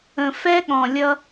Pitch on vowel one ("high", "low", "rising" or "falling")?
low